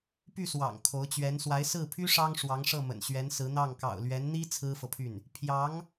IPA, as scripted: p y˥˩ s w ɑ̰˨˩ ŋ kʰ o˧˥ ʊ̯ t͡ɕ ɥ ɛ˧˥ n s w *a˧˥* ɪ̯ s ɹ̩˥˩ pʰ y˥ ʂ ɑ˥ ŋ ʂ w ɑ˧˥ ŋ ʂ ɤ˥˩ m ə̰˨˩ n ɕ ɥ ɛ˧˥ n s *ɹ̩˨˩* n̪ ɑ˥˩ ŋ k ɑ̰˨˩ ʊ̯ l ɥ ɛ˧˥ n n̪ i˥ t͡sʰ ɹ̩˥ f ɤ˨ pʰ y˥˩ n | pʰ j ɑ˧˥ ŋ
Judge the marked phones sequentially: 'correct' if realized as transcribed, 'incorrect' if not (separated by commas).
correct, incorrect